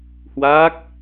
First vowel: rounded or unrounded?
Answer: unrounded